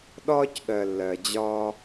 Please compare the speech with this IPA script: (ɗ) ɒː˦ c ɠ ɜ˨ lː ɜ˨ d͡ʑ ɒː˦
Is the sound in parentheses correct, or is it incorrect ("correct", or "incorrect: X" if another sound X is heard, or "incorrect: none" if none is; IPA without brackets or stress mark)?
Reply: correct